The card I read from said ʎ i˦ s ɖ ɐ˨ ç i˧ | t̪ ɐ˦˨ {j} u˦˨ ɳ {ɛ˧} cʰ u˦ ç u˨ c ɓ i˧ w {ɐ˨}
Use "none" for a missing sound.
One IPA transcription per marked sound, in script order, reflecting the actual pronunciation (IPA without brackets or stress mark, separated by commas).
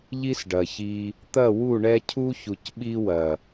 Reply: w, ɛ˧, ɐ˨